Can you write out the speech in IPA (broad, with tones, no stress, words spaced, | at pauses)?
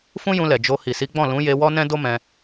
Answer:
fũ˦ jũ˧lɛ˨ d͡ʒo˧ hi˨si˨˦ɡ͡bɔ̃˦˨ lũ˨˦ je˧wɔ˦ nɛ̃˦do˦mɛ̃˧